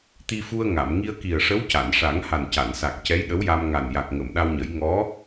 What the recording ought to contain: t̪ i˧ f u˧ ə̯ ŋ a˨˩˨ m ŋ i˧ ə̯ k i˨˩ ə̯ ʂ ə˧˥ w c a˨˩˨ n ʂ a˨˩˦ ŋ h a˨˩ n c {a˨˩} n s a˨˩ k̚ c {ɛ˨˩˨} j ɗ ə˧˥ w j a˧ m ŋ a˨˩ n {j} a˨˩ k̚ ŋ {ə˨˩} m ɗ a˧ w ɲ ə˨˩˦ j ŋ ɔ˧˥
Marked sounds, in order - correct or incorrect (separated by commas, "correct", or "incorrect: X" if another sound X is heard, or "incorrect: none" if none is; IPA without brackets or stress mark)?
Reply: incorrect: a˨˩˨, incorrect: ɛ˧˥, correct, incorrect: ə˨˩˨